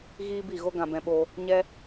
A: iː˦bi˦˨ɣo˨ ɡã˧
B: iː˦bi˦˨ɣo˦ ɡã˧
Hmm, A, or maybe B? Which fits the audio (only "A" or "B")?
B